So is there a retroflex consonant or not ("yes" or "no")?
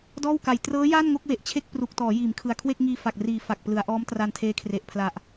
no